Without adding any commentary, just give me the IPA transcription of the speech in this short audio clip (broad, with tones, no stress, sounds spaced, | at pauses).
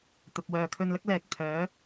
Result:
t̪ ɐ˨ p̚ w œː˨ kʰ ɵ˧ n l ɐ˥ k̚ l ɛː˨ k̚ t̪ʰ œː˨˥